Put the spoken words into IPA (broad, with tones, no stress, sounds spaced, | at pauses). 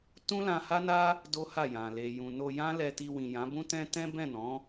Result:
t ũ˦ l ã˧ h a˦ n a˦ | d o˦ h a˦˨ j ã˨ l e˨ j ũ˨ n o˧ j ã˦ l ɛ˧ t i˧ w ĩ˨ j ã˨˦ b ũ˦ t ɛ̃˦ t ɛ̃˦ b ɛ̃˦˨ n ɔ̃˨˦